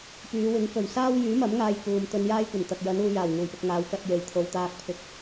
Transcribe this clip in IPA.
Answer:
p yː˨˧ w ɪ˨˥ ŋ k ɵ˨˩ ɥ s aː˥ w j yː˨˥ m ɐ˨˥ m ŋ aː˧ j k uː˨ m t̪ ɵ˧ n j aː˥ j kʷ ɐ˨˩ n t̪ ɐ˨ k̚ j ɐ˨˥ n uː˨˧ j aː˨˩ w ŋ uː˨˩ j p ɪ˨ k̚ ŋ aː˨˧ w k ɐ˧ t̚ j e˨ j t̪ʰ o˨ w t̪ aː˧ k̚ pʰ ɪ˨˥ k̚

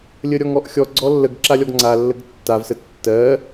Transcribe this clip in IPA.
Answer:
lʲ ə ɾʲ ɔ ŋ ɔ ʔ xʲ ɔ ɡ͡ǀ ɔ lː ə ɡ ǁ a lʲ ɔ ɡ ŋ͡ǀ a lː ə ɡ tː a v s ə tː ɜ

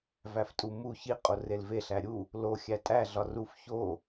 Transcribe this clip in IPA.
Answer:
v æ f tʼ u m u ç i qʼ o r e l v e ɬ æ ɾʲ u | l o xʲ æ tʼ æ ɮ ɒ r u f ç o

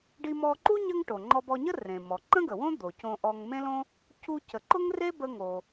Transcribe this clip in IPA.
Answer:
ɖ i˧ m ɔ˧ ǃ u˥ ɲ ə˧ ŋ ʈ o˩ ŋ͡ǃ ɔ˧ b ɔ˧ ɲ ə˥ r ẽ˩ m ɔ˩ ǃ ə̃˥ ɡ ə˩ w õ˥ d̪ o˩ c õ˧ ʔ ɔ˧ ŋ m ẽ˥ l õ˥ | c u˧ c ə˩ ǃ ʊ˥ ŋ r e˥ b ə˧ ŋ o˩

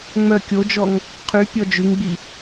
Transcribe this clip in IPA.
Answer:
ŋ͡m œ kʲ o d͡ʒ ɔ ŋ | qʰ y pʲ ɔ d͡ʒ ʉ ŋ ɡ͡b i

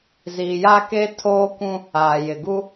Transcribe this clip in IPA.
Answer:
z iː˨ j aː˦ k eː˦ tʰ oː˦ kʷ ũ˦ | aː˨ j ɪ˨ ɡ u˦

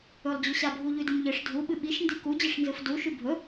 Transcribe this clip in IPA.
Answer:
ɵ lˠ d͡ʑ ʉ ɕ a bʱ u ʎ ʉ d ɨ m ʎ ɨ ʂ dʱ u ɓ ɨ ɓ i ʃ n d i k u d͡ʑ ɨ ʂ n z ɨ f d u ʃ ʉ bʱ ɵ

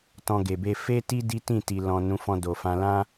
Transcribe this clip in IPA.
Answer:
t ɔ̃˧ ɡ e˨ b e˧ f e˦ t i˦ d i˦ t ĩ˦˨ t i˨ l ɔ̃˨ n ũ˨˦ f ɔ̃˧ d o˨ f ã˧ l ã˦

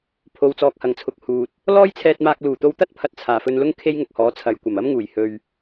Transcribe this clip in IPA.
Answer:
pʰ o˨ w t͡s ɔː˨ k̚ h ɐ˨˩ ŋ t͡sʰ ʊ˨ k̚ h uː˨ t̚ | l ɔː˥ j t͡sʰ ɛː˧ t̚ m aː˧ k̚ l uː˨˩ t̪ o˧ w t̪ ɐ˥ t̚ pʰ ɐ˨˥ t̚ t͡sʰ aː˨˩ f ɵ˧ n l ʊ˥ ŋ kʰ e˥ j ŋ ʊ˨ k̚ h ɔː˨˥ t͡sʰ ɐ˨ j kʷ ɐ˨˩ m ɐ˥ m ŋ uː˨˩ j h ɵ˨ ɥ

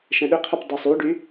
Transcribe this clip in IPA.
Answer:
ʃ ɛ̃ ɗ ʏ qʰ œ p dˤ ʏ sˤ y ɖ y

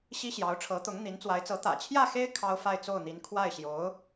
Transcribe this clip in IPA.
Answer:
ɕ i˥ ɕ j ɑ˧˥ ʊ̯ ʈ͡ʂʰ ɤ˧˥ t̪ ʊ˧˥ ŋ n̪ i˧˥ n t͡s w a˧˥ ɪ̯ t͡s ɤ˧˥ t̪ ä̰˨˩ t͡ɕʰ j ä˥˩ x e˥ ɪ̯ kʰ ɑ˥ ʊ̯ f a˥˧ ɪ̯ t͡s o˥˩ ʊ̯ n̪ i˧˥ n kʰ w a˥˩ ɪ̯ ɕ j o˧˥ ʊ̯

